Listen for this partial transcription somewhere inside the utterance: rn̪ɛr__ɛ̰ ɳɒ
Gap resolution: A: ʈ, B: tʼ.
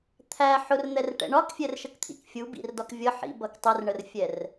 A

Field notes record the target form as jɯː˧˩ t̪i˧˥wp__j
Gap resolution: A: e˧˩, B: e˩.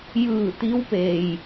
B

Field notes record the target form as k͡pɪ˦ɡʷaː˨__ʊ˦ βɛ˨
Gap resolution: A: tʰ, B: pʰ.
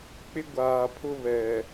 B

